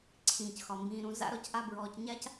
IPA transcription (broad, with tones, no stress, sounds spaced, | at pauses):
ǀʰ ĩː˩ c x ɒ˩ m b ĩː˨ ɾ ũ˨ z a̰˥ ɾ ɔ˨ c ʔ a˦ b ɹ ɔː˨ c ɲ a˥ c